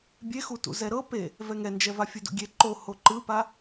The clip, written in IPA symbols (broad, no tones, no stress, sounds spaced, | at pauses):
bʲ e x u t ṵ z ɛ ɾ ɤ p e | v ɛ ŋ ɛ n d͡ʒ ɛ v a fʲ ɯ d ṵ ɡʲ e ǃ o h o ǃ ɯ p a